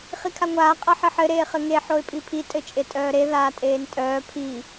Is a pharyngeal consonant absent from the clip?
no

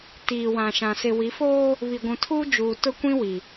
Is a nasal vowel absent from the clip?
no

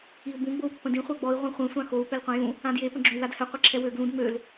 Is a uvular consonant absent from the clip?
no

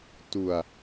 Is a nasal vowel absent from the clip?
yes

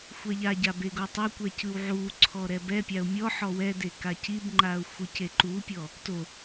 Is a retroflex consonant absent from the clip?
yes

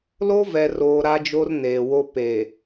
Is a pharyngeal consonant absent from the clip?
yes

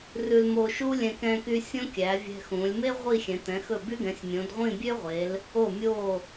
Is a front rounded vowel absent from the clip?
no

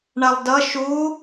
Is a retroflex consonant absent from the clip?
no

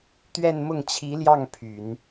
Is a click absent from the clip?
yes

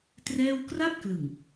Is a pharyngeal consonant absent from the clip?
yes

